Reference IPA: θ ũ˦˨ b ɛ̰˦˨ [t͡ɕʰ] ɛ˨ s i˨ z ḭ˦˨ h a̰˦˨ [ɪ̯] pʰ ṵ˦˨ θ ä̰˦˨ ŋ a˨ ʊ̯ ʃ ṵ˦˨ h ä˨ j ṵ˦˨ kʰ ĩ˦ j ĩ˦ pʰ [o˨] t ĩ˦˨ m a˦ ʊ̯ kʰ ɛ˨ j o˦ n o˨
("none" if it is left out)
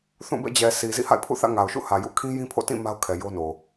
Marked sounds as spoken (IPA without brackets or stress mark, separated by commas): d͡ʑ, ɪ̯, o̰˦˨